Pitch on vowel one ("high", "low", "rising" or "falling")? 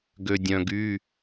low